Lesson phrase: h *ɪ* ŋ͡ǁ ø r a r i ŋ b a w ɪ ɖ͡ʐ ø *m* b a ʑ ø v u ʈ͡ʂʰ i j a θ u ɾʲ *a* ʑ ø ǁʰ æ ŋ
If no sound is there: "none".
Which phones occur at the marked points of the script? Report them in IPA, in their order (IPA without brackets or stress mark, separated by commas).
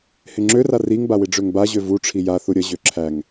ɪ, ŋ, ə